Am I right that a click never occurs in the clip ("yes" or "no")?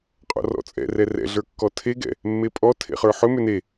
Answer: yes